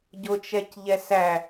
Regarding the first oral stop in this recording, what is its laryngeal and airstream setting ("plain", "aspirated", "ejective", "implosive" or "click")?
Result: plain